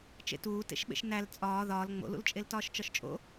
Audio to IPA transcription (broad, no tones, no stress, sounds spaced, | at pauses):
t͡ʃ ḛ t uː t ḛ ʃ ɓ ḛ ʃ n æ l t͡sʼ ɒː ð ɒː l ŋ͡m o̰ l ṵ l t͡ʃʼ e l t ɒː ʃ t͡ʃ ɒ ʃ t͡ʃʼ o̰